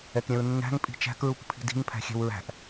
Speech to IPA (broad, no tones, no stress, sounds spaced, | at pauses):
ɛ k ɾʲ ɛ̃ ɹ nː æ̤ ŋ pʼ i̤ t͡ʃ æ̤ k ɹ u k pʰ i̤ d i̤ ŋ pʰ æ̤ xʲ ɛ̤ w ɹ æ̤ ʔ